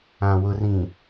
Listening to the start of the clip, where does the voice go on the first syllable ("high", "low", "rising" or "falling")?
low